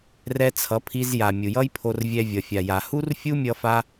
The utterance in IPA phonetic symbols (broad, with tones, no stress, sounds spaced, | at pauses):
r ɛ˧ t͡sʰ ʌ˨˦ pʰ i˧ z j a˨ mʲ u˨ j ʌ˦ j pʰ o˧ r vʲ ɛ˧ vʲ ʌ˨ fʲ a˨ j a˨ h u˦ r fʲ u˦ mʲ ʌ˦ f a˦